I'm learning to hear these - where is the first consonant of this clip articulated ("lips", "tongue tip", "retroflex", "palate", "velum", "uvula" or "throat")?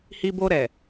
throat